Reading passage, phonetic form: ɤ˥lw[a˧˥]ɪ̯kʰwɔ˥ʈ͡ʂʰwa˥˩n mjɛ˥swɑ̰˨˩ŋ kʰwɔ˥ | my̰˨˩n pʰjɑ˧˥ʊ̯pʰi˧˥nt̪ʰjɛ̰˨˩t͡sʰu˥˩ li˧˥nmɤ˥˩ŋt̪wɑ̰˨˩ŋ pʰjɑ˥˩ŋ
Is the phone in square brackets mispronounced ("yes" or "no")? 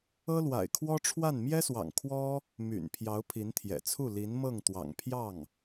yes